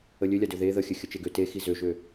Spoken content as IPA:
ə lʲ ø lʲ a d ø ð e ð ə xʲ ɘ xʲ ə t͡ʃ e ɡ ø t e x i z ø ʒ ø

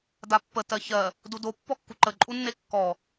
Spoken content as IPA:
d a pː ə t ɜ ç ɜ | d u d o pː ɔ kː u ǃ ə ǃʼ u nː e kː ɔ

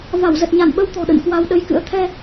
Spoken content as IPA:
v a˧˩ w z ə˨˩ t̚ ɲ a˧˩ n ɓ ə˧ w t̪ ɔ̤˨˩ ɗ ə̰˧˨ n k w a˧ w ɗ ə˧ j k ɨ̰˧˥ ə̯ t̪ʰ ɛ˧

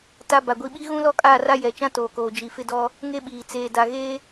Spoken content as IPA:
t a˦ b a˨ ɡʷ i˦ ɓ i˦ ɣ ũ˦ l ɔ˦ kʼ aː˦˨ r a˦ j ɛ˨ t͡ʃ ã˦ t oː˨ k oː˨ d͡ʒ i˨ f ɪ˦ d ɔ˦ | ŋ e˦ ɓ iː˨ t͡s eː˨ d a˨ ɣ eː˦

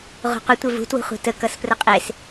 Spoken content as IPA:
ʁ ṳ qʷ ə tʷ e v ṳ t w ṳ χʷ e̤ t ə k ʌ s p r ə qʼ e s

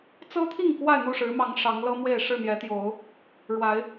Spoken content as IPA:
t͡s ɤ˦ t̪ʰ i˥˨ ŋ k w a˥˨ ɪ̯ n̪ u˥˨ ʂ ɻ̩˨˦ m ɑ˨˦ ŋ ʂ ɑ˨˦ ŋ l ɤ˦ m w e˥˨ ɪ̯ ʂ ɻ̩˥˨ n̪ j ɛ˨˦ t̪ j o˨˦ ʊ̯ | ɻ w a˨˦ ɪ̯

